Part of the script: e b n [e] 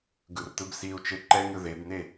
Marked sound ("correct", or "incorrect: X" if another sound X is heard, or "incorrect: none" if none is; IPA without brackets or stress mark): correct